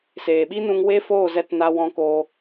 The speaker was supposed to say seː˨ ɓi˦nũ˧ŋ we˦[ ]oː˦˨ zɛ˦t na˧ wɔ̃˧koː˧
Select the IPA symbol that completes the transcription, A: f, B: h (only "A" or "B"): A